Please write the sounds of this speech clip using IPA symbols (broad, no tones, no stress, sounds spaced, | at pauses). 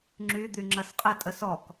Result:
ŋ͡ǁ y d̪ y ŋ͡ǁ ɐ s qʼ ə tʼ ə s ɔ k